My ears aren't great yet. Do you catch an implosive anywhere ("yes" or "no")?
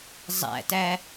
no